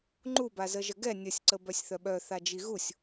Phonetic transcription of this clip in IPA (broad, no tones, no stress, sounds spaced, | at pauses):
ŋ͡ǃ u b a z ə ʒ ə ɡ ɛ nʲ ə sʲ ǀ ə b œ sʲ θ œ ɓ œ θ a d͡ʒ i ɣ u sʲ